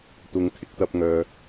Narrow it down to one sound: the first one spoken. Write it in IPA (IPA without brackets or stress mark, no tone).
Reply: t̪